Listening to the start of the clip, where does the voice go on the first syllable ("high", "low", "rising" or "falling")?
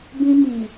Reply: high